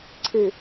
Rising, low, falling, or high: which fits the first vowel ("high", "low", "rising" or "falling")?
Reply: low